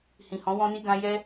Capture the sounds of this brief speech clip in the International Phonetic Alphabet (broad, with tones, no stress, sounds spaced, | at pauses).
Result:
h ĩ˨ h ɔ̃˨˦ w ɔ̃˦ n i˦ ɡ ã˦ j ɛ˦